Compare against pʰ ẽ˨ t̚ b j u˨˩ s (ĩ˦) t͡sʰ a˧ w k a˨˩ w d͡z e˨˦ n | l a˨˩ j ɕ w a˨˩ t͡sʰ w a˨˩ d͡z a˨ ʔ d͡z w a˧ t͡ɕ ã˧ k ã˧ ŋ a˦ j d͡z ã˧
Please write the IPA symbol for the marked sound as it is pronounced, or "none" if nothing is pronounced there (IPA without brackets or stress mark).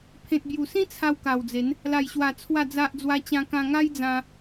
ĩ˦